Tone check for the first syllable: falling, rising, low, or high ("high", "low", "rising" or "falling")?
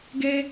high